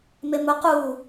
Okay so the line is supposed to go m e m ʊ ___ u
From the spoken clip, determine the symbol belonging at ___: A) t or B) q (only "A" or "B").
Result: B